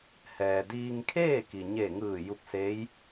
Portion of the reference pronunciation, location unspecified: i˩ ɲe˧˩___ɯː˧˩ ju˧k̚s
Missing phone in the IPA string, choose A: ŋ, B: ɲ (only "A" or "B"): A